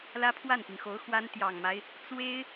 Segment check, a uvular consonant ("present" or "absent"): absent